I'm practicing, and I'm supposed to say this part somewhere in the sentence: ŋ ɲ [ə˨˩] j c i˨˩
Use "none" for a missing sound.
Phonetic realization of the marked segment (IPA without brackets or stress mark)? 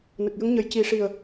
ə˨˩